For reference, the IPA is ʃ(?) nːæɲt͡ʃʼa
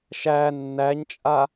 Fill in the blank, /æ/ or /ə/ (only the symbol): æ